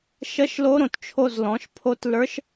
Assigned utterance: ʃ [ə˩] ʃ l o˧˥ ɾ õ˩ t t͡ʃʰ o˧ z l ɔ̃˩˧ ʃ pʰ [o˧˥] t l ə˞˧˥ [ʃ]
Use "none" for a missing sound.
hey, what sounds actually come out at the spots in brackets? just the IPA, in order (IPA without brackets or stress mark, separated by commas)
ə˧˥, o˧˥, ʃ